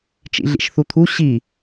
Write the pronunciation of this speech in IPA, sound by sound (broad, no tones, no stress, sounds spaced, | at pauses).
t͡ʃ ḭ ɮ ḭ ʃ θ u t̪ʰ u ɕ i